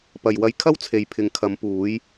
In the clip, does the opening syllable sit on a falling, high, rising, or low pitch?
low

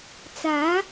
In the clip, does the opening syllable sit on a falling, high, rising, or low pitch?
rising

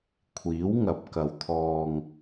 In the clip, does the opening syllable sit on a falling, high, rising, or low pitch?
rising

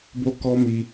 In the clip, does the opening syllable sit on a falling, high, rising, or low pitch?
high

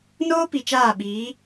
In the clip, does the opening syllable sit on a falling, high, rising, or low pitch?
high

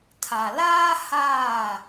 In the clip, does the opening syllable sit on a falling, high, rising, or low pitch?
low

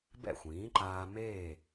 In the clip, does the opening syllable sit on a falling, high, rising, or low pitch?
falling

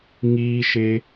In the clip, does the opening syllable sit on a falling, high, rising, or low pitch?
high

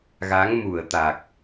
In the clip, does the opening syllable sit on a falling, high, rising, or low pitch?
rising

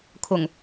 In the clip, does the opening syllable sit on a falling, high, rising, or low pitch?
low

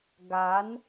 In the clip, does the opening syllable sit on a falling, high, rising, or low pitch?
rising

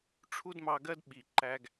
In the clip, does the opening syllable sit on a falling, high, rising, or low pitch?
high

